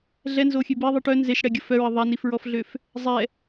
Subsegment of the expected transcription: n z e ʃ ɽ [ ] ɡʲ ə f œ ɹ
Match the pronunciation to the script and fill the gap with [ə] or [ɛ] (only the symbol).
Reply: ɛ